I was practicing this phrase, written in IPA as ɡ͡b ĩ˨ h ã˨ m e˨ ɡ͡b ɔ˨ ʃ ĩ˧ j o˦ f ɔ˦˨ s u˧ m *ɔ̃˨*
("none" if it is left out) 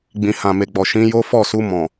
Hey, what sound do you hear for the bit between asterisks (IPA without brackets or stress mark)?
ɔ̃˨